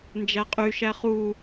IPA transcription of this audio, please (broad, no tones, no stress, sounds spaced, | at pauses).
n d͡ʒ æ qʼ y ʃ æ χ u